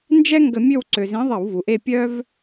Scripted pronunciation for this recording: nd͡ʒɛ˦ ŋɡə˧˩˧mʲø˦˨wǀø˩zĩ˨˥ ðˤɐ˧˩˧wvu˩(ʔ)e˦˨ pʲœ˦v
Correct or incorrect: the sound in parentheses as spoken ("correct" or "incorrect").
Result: correct